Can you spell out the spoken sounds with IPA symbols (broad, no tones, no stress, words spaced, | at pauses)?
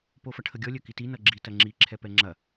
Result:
pofɐʈʰəɡʲɔ lʲœkiti nʌɡ͡ǁi tɐŋ͡ǁi ǁʰɛpɛŋ͡ǁɐ